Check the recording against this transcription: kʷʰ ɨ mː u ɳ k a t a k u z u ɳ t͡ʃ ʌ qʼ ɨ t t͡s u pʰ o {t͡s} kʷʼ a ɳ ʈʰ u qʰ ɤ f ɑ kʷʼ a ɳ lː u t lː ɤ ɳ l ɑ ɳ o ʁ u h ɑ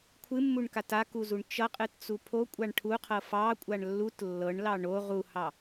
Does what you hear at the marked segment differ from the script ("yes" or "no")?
yes